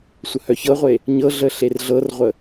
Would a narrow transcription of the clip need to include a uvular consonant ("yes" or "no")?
yes